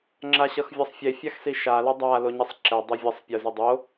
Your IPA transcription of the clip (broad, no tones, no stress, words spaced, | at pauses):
ŋ͡ǁaɕʌxvʲʌsˤfʲe fʲaxsiʃa lʌdˤa loɲisˤǁɛ dˤevʲʌsˤ pʲɯzɯdˤo